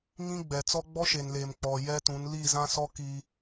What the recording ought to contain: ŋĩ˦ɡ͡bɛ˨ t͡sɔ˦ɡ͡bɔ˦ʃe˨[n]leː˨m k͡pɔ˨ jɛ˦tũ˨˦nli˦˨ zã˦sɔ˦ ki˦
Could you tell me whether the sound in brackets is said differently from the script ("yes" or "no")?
no